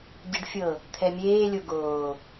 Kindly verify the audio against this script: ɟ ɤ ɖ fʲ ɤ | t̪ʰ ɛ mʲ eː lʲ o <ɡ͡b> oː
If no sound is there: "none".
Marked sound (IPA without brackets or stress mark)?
ɡ